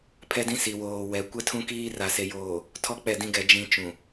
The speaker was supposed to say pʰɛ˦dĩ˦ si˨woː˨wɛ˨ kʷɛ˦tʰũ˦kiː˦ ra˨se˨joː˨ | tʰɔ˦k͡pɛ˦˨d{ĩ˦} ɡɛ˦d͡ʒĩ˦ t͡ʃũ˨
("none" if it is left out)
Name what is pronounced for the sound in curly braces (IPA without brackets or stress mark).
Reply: ĩ˦